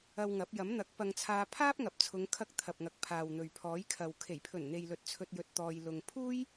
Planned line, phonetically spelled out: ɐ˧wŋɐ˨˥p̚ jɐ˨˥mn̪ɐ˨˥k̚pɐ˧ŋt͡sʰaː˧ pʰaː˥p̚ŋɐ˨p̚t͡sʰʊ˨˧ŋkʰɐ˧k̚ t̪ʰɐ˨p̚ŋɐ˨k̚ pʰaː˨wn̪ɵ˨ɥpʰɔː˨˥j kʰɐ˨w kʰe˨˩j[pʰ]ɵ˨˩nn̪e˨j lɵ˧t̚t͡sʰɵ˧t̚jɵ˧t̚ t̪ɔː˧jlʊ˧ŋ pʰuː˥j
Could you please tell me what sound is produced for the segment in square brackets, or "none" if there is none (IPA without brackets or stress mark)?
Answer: pʰ